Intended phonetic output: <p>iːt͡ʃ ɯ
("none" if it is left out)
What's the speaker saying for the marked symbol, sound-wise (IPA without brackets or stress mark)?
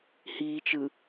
h